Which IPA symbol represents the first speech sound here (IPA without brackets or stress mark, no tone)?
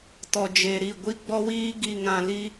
t